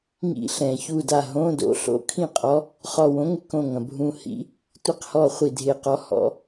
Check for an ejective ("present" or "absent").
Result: present